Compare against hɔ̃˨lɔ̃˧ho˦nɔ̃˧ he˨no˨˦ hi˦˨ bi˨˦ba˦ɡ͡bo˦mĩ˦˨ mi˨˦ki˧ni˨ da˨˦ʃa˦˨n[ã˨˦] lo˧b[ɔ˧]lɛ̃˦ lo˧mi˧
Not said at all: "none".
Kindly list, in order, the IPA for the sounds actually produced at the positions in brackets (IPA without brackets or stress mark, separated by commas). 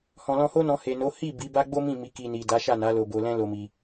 a˨˦, o˧